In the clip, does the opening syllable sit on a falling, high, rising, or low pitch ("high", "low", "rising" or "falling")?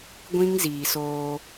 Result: high